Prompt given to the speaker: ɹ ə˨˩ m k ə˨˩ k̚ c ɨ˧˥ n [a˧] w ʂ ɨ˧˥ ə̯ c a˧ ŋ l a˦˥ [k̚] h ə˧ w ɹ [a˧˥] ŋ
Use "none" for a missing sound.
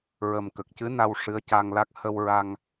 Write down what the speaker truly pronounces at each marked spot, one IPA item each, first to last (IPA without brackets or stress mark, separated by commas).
a˧, k̚, a˧